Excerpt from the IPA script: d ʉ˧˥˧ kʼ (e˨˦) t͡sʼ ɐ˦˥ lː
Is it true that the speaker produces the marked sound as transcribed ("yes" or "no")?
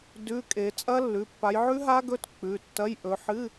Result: yes